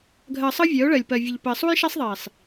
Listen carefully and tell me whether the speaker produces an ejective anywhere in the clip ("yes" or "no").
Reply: no